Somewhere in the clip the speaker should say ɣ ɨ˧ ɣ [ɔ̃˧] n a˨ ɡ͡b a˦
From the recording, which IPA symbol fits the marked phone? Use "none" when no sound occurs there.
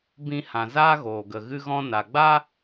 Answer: ɔ̃˧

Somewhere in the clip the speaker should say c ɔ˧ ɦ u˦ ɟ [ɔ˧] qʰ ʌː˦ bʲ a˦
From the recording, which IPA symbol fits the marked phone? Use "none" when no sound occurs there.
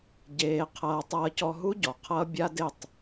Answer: ɔ˨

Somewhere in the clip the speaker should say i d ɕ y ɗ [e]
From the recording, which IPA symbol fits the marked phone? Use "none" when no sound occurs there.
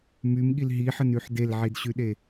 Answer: e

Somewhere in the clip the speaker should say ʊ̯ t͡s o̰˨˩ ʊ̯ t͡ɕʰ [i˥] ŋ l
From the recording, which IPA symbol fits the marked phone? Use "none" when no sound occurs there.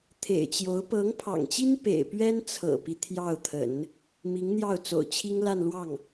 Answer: i˥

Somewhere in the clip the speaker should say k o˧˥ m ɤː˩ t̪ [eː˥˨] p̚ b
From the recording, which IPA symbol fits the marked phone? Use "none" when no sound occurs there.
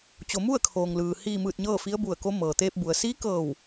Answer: eː˧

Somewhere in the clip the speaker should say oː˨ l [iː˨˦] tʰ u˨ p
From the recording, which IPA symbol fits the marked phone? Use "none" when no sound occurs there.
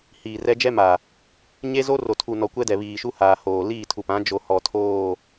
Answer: iː˦˨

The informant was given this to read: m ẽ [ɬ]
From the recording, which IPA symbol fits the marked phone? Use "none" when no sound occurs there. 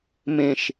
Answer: ʃ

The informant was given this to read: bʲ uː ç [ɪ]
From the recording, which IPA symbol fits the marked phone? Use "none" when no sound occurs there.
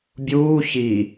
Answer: i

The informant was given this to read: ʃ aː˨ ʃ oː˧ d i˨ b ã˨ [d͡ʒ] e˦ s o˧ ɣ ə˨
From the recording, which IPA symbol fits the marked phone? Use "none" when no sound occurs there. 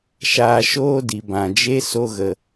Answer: d͡ʒ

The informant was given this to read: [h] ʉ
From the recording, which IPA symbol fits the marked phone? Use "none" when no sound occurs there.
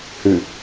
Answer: h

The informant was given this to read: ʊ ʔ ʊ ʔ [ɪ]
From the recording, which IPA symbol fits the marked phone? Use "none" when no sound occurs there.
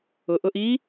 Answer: i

